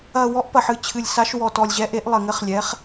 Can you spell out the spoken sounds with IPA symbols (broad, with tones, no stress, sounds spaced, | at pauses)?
ɐ˨˩ w ɔ˨˥ ʔ p ɐ˨˩ ħ ɨ˨˩ t͡ɕʰ ɨ˨˩ lʲ s a˨˥ ʃ w ɔ˨˩ t ɔ˨˩ lʲ ʑ ɛ˨˥ ʔ e˨˥ ʔ lˠ ɘ˨˩ ŋ ɘ˨˥ χ lʲ ɛ˨˥ χ